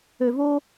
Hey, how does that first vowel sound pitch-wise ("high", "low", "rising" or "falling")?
low